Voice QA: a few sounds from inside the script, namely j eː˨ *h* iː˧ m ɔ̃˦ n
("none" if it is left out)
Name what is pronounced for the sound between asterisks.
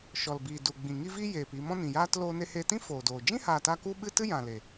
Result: p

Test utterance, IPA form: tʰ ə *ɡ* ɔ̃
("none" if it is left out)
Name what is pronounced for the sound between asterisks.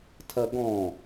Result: ɡ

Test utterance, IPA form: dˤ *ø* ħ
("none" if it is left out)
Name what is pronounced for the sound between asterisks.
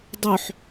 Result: ø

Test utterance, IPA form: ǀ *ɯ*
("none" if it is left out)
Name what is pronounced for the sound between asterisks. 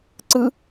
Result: ɯ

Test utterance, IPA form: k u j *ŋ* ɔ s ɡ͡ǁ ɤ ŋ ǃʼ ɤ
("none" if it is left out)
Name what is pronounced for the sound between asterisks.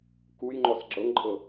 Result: ŋ͡ǃ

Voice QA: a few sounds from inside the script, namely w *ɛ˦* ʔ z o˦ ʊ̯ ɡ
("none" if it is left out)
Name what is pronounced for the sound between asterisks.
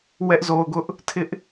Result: ɛ˦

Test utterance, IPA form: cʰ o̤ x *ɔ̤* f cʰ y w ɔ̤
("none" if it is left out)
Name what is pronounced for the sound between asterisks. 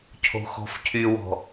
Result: ɔ̤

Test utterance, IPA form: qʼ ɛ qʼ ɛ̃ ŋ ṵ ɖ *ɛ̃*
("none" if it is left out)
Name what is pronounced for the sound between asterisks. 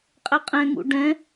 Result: ɛ̃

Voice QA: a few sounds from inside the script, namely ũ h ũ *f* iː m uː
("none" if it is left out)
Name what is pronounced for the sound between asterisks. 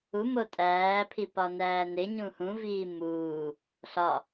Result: v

